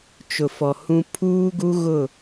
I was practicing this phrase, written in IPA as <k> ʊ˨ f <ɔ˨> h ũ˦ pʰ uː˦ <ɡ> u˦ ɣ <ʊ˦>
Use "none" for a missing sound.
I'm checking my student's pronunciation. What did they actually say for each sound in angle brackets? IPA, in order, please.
t͡ʃ, ɔ˨, ɡ, ʊ˦˨

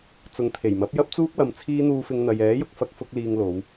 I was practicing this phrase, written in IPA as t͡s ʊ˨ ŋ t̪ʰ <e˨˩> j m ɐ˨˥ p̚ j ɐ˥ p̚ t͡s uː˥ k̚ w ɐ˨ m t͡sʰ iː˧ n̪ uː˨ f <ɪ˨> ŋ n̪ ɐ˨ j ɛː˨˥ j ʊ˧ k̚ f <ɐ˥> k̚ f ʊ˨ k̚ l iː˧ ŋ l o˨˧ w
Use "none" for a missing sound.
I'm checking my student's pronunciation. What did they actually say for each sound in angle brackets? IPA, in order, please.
e˨˩, ɪ˨, ɐ˧

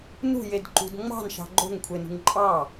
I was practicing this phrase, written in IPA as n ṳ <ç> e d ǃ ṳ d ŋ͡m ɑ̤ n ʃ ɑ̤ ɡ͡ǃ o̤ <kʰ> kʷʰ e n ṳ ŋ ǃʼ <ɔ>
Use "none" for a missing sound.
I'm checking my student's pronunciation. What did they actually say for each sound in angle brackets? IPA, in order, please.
j, ŋ, ɑ

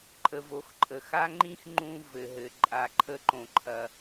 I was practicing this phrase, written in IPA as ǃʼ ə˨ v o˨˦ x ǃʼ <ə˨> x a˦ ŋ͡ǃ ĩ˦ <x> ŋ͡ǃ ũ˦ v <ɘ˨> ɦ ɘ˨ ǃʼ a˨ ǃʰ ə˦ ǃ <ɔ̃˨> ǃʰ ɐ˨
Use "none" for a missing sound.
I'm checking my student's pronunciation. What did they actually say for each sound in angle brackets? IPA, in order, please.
ə˨, x, ɘ˨, õ˨

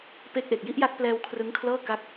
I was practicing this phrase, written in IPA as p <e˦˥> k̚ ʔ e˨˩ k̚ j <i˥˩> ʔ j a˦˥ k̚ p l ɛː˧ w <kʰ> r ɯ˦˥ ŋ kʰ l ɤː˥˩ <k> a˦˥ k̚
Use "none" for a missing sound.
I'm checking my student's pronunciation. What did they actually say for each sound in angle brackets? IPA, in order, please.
e˦˥, i˥˩, kʰ, k

